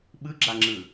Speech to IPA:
ɓ ɯ ɡ͡ǁ a ŋ͡ǁ ɯ

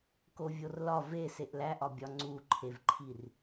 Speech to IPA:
k o vʲ o r l ɒ v e s e ʔ l æ ʔ ɒ bʲ ɒ ŋ͡ǀ u ǃʰ e v ǃʰ i r

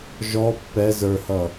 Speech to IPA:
ʒ ɔ pː ɛ z ə˞ h ʌ

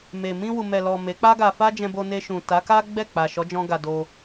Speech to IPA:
m e˨ m ĩ˧ w u˨ m ɛ˨ l ɔ˨ m e˨˦ k͡p a˦ ɡ a˧ f a˦ d͡ʒ ɛ̃˧ b o˧ n e˧ ʃ ũ˨ t a˨˦ k a˦ ɡ͡b ɛ˦˨ k͡p a˨ ʃ ɔ˨˦ d͡ʒ ɔ̃˧ ɡ a˧ d o˧

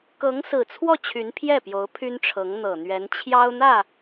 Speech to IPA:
k ɤ˧˥ ŋ s ɹ̩˨˩ t͡sʰ w ɔ˥˩ t͡ɕʰ y˧˥ n pʰ j ɛ˥˩ p j o˧˥ ʊ̯ pʰ y˥ n ʈ͡ʂʰ ɤ˧˥ ŋ n̪ ɤ˨˩ n̪ ɥ ɛ˧˥ n t͡ɕʰ j ɑ˥ ʊ̯ n̪ ä˥˩

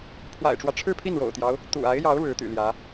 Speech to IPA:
pʰ w a̰˨˩ ɪ̯ ʈ͡ʂ w ä˦ ʈ͡ʂʰ ɻ̩˥˧ pʰ i˥˩ n ɻ o̰˨˩ ʊ̯ t̪ j ɑ˦ ʊ̯ | t̪ ṵ˨˩ a˧˥ ɪ̯ j ɑ˧˥ ʊ̯ ɻ ɻ̩˧˥ t̪ y̰˨˩ l j ä˧˥

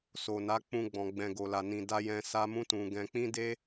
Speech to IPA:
s o˨ n a˨˦ k͡p ũ˧ ɡ͡b ɔ̃˨ ɡ͡b ɛ̃˨ ɡ o˨ l a˨ n ĩ˨ d a˧ j ɛ̃˧ s a˦ m ũ˦ t ũ˧ ɡ ɛ̃˧ k͡p ĩ˦ d e˦

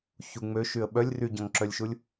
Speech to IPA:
ç u ŋ͡m ø ʃ y ə̯ ɓ œ lʲ r y ɟ ɔ̃ ŋ ǁ œ lʲ ʃ u lʲ

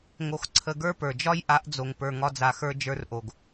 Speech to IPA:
ŋ o˧ x ǀʰ ə˧ ɡ ə˞˦ p ə˞˨ d͡ʒ ɒ˦ j ʔ a˨˦ ʔ d͡z o˨ ŋ p ə˞˨ ŋ ɒ˧ d͡z a˨ x ə˞˧ d͡ʒ ə˞˧ r ʔ o˨ ɡ

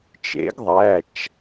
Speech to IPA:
t͡ʃ ḛ˨˥ ɡ ðˤ æ˩˧˩ t͡ʃ

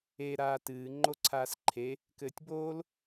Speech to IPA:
e ɾ aː t ɨː ŋ͡ǃ o ǀʰ aː s ǃʰ e | k ɘː tʲ b oː l

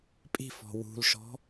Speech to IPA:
pʼ i̤ f ɔ̤ w ṳ l ʃ ɔ̤

